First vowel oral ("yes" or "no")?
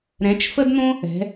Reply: no